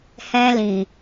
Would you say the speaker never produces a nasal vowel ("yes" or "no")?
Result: no